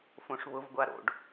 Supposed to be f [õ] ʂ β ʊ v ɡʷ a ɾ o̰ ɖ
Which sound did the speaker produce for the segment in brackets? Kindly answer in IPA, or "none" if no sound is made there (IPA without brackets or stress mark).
õ